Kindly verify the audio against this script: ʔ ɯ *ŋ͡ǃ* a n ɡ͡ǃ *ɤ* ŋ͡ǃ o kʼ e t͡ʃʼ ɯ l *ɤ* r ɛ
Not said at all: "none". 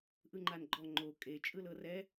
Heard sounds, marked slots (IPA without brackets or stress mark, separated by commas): ŋ͡ǃ, ɔ, ɤ